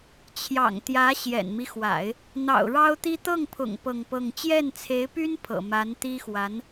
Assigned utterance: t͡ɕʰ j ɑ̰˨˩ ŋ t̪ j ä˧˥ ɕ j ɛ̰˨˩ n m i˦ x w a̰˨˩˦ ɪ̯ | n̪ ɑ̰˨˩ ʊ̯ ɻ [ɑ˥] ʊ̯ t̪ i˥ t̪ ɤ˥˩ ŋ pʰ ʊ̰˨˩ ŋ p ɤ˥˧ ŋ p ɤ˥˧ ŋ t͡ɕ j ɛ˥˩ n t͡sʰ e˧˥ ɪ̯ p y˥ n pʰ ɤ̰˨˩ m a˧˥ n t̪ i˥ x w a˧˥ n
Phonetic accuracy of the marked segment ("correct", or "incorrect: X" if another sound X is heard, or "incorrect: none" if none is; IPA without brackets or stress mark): correct